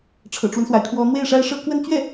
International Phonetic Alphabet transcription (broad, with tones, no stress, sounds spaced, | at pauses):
ʈ͡ʂʰ ɤ̰˨˩ ʈ͡ʂ w ə˦ n s w a˩ ɪ̯ kʰ w ɔ˧˥ n̪ w e˥˩ ɪ̯ ʂ a˥ ɪ̯ ʂ ɤ˥ k w ə˥ n t͡ɕ ɥ ɛ˥˩